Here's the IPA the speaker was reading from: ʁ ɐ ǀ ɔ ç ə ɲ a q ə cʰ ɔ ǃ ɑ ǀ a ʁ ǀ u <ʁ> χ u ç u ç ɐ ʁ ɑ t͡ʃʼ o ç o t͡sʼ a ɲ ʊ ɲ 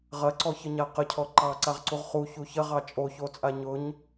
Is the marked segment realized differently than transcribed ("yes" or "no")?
no